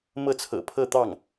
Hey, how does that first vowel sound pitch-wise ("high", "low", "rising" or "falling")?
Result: falling